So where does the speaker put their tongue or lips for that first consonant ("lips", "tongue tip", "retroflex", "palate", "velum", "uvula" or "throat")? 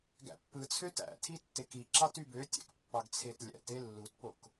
velum